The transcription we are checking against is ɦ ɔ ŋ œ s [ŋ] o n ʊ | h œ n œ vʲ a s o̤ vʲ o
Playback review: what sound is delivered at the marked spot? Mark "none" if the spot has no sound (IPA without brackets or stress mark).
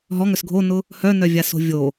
ɡʱ